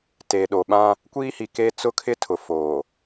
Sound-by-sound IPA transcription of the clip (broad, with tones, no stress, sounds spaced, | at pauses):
t eː˨ ɗ o˨ ɓ ã˦ | kʷ iː˦ h i˨ k e˦ t͡s ʊ˦ kʰ ɪ˦ tʰ ʊ˨ f oː˨